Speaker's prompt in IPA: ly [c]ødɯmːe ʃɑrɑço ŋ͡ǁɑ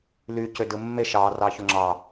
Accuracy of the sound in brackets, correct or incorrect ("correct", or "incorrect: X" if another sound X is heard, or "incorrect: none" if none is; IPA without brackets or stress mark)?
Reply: correct